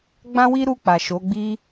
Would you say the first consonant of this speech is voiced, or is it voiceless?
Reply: voiced